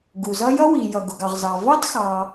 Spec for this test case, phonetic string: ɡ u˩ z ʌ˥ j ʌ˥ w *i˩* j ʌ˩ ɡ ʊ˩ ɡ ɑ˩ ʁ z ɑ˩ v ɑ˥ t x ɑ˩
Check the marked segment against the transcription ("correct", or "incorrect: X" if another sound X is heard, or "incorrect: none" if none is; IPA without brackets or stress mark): correct